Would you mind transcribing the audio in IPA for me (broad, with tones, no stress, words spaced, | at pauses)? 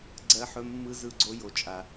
ɡ͡ǀɜ˧ħɵ˧mːɯ˧ zɯ˧ɡ͡ǀo˧jo˨t͡ʃʼa˨